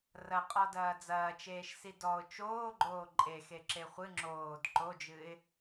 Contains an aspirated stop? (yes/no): no